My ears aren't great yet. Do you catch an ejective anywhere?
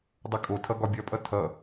yes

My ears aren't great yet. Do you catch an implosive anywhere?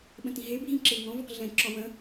yes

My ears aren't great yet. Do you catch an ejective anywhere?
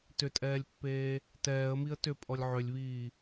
yes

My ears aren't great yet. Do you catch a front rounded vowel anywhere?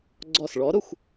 no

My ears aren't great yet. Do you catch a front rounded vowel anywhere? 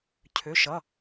yes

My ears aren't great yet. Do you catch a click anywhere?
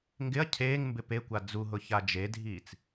no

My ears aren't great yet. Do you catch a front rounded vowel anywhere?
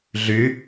yes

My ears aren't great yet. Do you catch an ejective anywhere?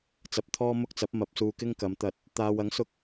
no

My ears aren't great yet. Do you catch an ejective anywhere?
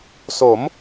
no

